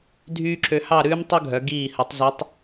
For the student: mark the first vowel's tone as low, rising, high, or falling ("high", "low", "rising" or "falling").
high